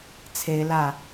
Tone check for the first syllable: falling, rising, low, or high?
rising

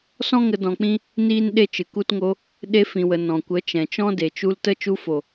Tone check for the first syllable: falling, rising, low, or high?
high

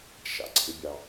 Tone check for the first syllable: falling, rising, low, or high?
low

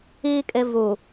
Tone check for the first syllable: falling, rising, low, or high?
low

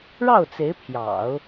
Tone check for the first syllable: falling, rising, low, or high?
falling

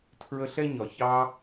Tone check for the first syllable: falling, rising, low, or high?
high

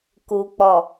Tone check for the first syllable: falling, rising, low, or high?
low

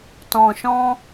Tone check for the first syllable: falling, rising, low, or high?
low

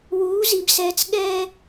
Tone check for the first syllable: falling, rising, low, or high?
rising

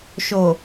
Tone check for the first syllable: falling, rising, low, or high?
low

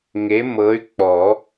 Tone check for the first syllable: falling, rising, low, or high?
rising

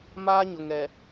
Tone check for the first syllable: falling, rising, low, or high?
high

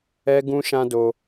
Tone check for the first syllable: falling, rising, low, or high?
high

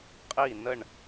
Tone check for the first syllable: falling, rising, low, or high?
falling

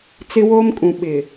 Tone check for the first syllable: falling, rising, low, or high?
high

